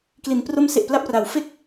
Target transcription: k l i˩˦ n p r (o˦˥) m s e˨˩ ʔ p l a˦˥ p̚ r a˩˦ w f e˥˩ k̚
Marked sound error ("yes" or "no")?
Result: no